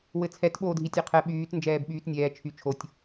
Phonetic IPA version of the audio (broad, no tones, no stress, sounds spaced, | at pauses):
w ɘ t͡sʰ ɛ t ɓ oː dʱ i tʲ ɛ qʰ ɛ ɓ yː t n d͡ʒ ɛː b ɓ yː t nʲ ɛː t͡ʃʰ y t͡ʃʰ o tʲ